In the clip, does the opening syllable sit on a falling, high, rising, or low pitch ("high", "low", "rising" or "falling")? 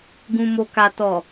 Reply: low